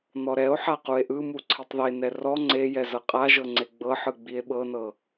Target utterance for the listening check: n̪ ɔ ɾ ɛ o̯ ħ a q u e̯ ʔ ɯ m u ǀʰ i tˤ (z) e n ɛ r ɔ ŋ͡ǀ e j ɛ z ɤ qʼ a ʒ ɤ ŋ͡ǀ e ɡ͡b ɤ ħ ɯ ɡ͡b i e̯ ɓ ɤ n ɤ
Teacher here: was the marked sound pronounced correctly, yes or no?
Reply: no